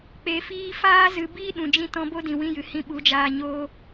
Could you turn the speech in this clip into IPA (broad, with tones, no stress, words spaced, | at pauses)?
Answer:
k͡pe˨fiː˧faː˦ zɨ˧ biː˦ɗũ˨d͡ʒĩ˧tɔ̃˧ bo˦dĩ˨wĩ˧jɨ˨ hĩ˧ɓu˨˦d͡ʒaː˧ɲoː˦